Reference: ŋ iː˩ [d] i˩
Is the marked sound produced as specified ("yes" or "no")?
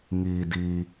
yes